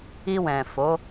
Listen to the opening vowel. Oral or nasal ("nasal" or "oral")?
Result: oral